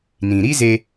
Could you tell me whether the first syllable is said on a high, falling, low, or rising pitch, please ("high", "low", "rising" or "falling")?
low